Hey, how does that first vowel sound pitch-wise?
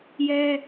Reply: high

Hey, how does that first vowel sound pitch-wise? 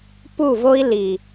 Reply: falling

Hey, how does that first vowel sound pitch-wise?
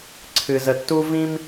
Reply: low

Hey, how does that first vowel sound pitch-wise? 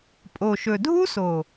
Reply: low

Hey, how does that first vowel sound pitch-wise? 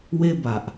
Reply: high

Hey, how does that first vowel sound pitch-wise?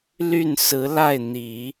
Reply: falling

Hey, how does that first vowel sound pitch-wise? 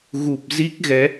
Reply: low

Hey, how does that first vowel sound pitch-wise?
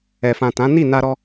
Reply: low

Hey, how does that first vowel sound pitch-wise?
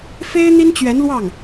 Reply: high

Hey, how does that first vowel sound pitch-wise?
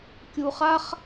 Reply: low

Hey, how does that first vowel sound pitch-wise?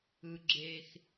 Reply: low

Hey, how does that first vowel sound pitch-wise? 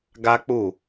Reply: high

